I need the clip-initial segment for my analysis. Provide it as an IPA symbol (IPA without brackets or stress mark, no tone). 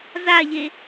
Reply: z